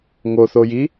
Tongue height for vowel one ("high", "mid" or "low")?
mid